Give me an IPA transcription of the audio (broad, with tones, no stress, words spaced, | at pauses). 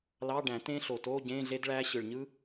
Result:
lɑ˧˥˧ɖæ̃˨˩˦tẽ˦˥ɬo˨˩ to˧˥˧ɟẽ˧˥˧ ɮe˦˥dɭæ˦˥ ɕɯ˨˩ɭɲɯ˦˥